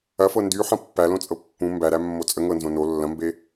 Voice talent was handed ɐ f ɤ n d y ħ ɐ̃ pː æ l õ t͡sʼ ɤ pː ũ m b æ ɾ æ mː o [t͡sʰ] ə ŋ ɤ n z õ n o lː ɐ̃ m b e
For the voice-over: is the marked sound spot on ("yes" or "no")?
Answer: no